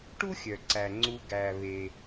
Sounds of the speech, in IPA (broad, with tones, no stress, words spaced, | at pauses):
ʈu˥xʲœ˩ǀæ˩ŋ͡ǀu˨ ɡæ˩βe˩